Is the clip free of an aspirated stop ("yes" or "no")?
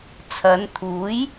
no